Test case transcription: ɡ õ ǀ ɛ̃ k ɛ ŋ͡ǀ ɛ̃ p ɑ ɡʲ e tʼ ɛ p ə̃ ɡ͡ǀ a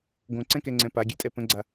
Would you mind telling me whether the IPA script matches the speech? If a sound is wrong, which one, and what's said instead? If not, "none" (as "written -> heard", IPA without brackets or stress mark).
ɑ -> a